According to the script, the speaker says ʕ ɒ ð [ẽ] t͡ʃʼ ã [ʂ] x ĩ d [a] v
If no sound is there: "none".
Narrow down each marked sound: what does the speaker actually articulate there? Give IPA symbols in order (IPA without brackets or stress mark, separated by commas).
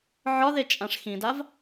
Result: e, ʂ, a